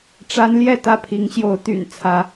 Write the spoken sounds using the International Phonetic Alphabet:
ʈ͡ʂa˦nljɛ˥˨ t̪ä˥˨pʰi˨˦ŋɕjo˨˦ʊ̯t̪y̰˨˩n t͡sʰä˨˦

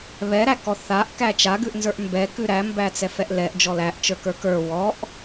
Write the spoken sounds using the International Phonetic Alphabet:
βɛɾækɔ θaʔkæ t͡ʃaɡʉʔnzə˞ʔ mbɛkʉ ɾæmbæt͡sɛfɛʔ lɛʔd͡ʒɔ læʔt͡ʃə˞kə˞ kə˞ wɔʔ

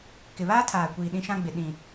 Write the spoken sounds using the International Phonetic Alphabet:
kɪ˨βaː˦tʰaː˨kʷiː˨ ɗĩ˦ʃã˦ɡ͡bɪ˨ ɗĩ˨

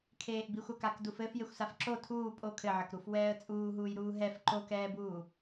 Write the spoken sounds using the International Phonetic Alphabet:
kʰeːʔbixʷakak dufɘf jexʷsafǁo tʰuː pʼo kʰɘʕɘkɾuf wɛːə̯t͡sʼuːɦuːjɾuː ɦɛf ǃokɛːbuː

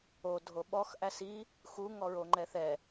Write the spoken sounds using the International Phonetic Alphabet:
o dʱoɓɔx ʔæsi | xu ŋɔɹoŋ͡ǃɛθɛ

